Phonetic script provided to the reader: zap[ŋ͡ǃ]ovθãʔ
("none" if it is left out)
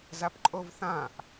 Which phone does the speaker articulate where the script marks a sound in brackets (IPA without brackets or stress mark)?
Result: ǃʼ